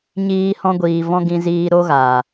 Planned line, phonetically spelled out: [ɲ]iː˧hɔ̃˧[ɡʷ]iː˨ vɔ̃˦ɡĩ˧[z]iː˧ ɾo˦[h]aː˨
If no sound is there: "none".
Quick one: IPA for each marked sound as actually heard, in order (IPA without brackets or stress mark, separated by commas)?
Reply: ɲ, ɡʷ, z, ɣ